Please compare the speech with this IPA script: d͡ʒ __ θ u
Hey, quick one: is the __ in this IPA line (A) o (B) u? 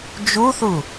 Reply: B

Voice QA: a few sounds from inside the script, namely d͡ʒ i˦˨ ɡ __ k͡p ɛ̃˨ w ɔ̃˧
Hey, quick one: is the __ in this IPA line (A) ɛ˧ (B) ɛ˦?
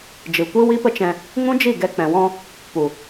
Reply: A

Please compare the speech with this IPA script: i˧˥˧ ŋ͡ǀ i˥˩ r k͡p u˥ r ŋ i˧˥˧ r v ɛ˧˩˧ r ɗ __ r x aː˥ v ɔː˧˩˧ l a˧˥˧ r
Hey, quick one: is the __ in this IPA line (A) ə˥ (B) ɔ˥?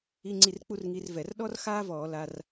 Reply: B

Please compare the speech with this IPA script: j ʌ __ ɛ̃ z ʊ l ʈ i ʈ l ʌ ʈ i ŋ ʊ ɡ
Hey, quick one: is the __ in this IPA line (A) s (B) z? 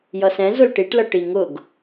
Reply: A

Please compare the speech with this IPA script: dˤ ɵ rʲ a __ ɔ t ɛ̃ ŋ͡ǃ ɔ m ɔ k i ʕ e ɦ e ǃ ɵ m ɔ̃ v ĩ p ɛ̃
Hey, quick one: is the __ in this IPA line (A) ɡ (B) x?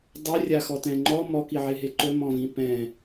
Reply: B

